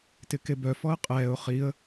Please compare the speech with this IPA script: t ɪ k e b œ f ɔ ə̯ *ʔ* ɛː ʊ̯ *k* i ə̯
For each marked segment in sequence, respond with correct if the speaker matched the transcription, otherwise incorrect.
incorrect: qʼ, incorrect: χ

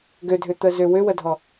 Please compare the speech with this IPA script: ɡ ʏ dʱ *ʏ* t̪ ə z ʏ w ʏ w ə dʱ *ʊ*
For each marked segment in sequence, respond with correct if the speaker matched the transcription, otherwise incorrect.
correct, incorrect: ɔ

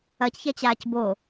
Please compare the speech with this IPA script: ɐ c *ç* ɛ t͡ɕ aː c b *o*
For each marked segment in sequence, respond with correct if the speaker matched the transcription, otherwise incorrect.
correct, correct

